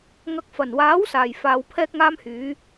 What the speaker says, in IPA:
ŋ ɐ˨˥ k̚ f ɐ˨˩ n w aː˨˥ w s aː˨˩ j f aː˨˧ w pʰ ɛː˥ k̚ ŋ aː˥ m h yː˨˥

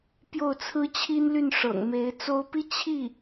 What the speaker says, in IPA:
p j o˥˩ ʊ̯ t͡sʰ ɹ̩˥ t͡ɕʰ i˥ n l y˥˩ n ʂ ɤ̰˨˩ ŋ m e˧˥ ɪ̯ t͡s o˥ ʊ̯ p i˥ t͡ɕʰ i˥˩

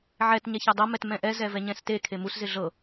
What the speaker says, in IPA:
ʕ ɛ t ɲ ɛ ç a dˤ ɤ m ɛ t m ɛ̃ ʔ ɛ z ɛ v ɛ ɲ ɛ̃ s t e kʰ e m u s z ɪ ɮ ɤ

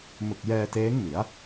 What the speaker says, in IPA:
m ɯ˨˩ k̚ j ɛː˧ t eː˦˥ ŋ m i˩˦ a̯

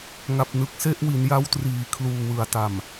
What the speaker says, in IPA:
ŋ a˨˩ p̚ n ɯ˨˩ k̚ s e˥˩ ʔ w i˩˦ n j a˦˥ w t r iː˩˦ kʰ l uː˨˩ w ɯ˩˦ a̯ t a˨˩ m

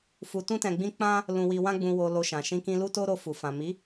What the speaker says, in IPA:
f u˧ t ũ˦ t ɛ̃˧ ɡ͡b ĩ˦ k͡p ã˦ | l ũ˧ w i˧ w ã˦ ɡ͡b ũ˧ w o˧ l o˧ ʃ ã˨ ʃ ĩ˧ k ĩ˧ l u˦ t o˦ ɾ o˧ f u˨ f ã˨ m i˨˦

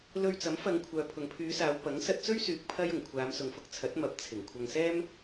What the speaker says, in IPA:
l ɵ˧ ɥ t͡s ɐ˨˥ m f ɐ˨˧ ŋ kʷʰ œː˨ pʰ ʊ˨ ŋ pʰ yː˨˧ s aː˨˧ w p ɐ˨˥ ŋ s ɐ˧ t̚ t͡s ɵ˥ ɥ s yː˨ k̚ pʰ ɐ˥ j ʊ˨˩ ŋ kʷʰ aː˨˧ m s ʊ˨ ŋ f ʊ˧ k̚ t͡sʰ ɐ˨˥ t̚ m ɐ˨˥ p̚ t͡sʰ ɪ˨˩ ŋ kʷʰ ɐ˧ ŋ s ɛː˥ m

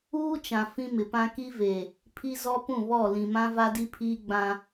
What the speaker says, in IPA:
uː˦ t͡ʃ ã˨ f ĩ˦ m ɪ˨ p ã˦ k i˦ v e˨ | pʰ i˦ z ɔ˦ p ũ˦˨ β ɔ˦˨ l ĩ˨ m ã˦ v a˦ d i˦ pʰ iː˦ ɡ͡b ã˦

